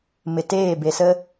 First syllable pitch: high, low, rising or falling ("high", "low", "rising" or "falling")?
low